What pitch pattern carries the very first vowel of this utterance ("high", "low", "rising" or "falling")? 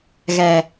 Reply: low